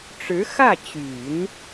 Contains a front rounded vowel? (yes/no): yes